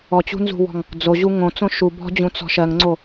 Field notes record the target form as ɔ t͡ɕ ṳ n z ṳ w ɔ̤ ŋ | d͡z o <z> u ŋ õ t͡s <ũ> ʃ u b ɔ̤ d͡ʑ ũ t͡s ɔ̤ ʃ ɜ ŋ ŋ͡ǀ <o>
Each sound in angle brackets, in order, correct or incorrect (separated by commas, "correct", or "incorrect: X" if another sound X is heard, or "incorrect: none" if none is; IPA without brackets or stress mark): incorrect: ʑ, incorrect: õ, correct